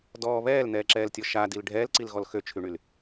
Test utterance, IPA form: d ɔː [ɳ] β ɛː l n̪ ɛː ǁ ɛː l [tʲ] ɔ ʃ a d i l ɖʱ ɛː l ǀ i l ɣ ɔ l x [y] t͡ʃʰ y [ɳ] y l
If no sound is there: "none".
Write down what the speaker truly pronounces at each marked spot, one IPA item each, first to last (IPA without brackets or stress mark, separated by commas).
none, tʲ, ø, ɳ